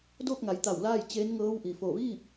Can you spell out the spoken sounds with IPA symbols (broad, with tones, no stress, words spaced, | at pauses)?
doː˥˨k̚ŋa˩˧jt̪a˧˩w laː˥˨jt͡ɕeː˧˥n ŋɤː˧˥wʔi˩ fo˧˩ʋiː˥˨p̚